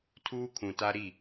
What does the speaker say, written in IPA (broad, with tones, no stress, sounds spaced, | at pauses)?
tʰ uː˦ kʰ ũ˨ t a˦ ɾ i˦˨